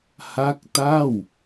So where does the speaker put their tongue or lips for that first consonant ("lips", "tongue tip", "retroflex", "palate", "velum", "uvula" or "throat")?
throat